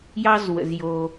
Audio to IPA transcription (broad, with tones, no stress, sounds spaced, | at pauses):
j ɑ˥ z w ə̰˨ z j o˨